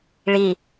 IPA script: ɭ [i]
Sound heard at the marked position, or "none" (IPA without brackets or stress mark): i